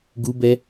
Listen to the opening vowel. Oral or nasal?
oral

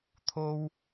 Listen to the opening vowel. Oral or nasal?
oral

